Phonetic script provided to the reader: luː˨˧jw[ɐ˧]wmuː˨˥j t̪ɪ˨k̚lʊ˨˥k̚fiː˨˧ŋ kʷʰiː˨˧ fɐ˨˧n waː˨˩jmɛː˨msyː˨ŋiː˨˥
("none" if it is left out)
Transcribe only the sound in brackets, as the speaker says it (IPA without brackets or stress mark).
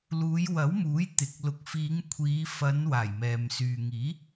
ɐ˨˥